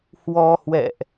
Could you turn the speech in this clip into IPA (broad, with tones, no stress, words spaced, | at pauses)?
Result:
hwɔ˧hwɛ̰˧˨ʔ